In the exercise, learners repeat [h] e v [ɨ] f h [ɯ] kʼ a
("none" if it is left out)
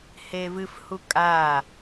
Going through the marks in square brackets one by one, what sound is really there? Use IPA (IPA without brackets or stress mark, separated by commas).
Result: h, ɨ, u